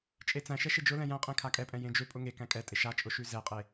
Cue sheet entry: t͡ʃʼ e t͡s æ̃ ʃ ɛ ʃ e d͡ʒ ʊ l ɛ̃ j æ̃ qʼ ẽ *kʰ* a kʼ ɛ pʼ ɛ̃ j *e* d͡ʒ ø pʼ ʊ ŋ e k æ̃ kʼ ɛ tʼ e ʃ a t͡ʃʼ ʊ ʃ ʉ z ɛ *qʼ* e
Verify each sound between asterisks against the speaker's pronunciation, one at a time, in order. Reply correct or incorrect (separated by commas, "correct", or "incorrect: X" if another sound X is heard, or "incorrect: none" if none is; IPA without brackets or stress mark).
correct, incorrect: ẽ, correct